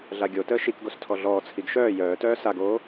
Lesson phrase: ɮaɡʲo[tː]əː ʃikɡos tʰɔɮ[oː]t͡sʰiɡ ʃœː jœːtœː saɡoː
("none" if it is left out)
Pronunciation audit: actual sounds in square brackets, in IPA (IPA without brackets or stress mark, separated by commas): t, ɔː